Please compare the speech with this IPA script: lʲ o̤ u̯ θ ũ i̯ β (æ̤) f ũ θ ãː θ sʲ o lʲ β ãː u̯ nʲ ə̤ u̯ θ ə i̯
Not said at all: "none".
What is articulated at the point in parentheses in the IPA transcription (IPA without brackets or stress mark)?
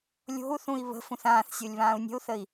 ə̤